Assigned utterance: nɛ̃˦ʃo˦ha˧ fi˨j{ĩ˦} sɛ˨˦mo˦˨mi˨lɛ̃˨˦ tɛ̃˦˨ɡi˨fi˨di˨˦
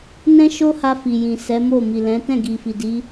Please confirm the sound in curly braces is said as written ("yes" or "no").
no